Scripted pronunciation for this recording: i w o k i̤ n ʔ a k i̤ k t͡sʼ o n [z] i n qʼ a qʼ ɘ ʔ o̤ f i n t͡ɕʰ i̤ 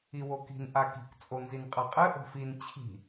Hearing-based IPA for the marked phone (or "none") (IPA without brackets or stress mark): z